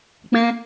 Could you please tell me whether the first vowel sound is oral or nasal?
nasal